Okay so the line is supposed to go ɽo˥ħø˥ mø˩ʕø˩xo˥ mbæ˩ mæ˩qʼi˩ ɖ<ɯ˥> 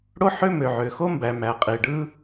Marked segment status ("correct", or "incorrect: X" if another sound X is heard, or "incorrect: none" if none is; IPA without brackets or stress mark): correct